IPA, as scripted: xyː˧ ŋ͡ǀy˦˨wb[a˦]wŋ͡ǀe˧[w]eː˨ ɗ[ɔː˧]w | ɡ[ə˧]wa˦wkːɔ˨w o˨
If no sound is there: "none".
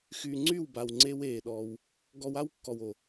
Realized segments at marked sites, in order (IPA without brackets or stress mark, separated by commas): a˨, w, ɔː˧, ɔ˧